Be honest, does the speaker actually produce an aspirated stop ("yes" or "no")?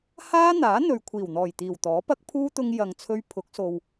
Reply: yes